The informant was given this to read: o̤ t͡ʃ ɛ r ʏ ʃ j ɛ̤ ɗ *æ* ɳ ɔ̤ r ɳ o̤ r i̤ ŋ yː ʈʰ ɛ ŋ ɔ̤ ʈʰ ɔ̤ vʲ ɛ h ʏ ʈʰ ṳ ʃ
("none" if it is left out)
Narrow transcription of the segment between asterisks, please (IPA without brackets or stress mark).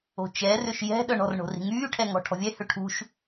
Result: œ